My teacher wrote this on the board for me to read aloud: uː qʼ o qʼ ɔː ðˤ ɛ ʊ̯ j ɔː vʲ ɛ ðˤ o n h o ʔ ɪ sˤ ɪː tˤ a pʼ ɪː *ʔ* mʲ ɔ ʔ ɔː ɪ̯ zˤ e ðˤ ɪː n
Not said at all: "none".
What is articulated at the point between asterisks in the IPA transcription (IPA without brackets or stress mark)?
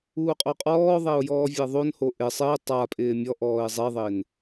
none